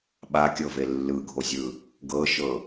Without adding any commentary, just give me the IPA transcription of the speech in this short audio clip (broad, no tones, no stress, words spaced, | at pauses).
ɓakʲɤve lːɯɡʱozʲɯ | ɡɤʃɤ